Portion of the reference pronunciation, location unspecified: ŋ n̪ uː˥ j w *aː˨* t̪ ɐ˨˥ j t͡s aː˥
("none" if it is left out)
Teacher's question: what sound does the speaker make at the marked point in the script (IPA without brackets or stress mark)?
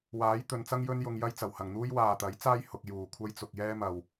aː˨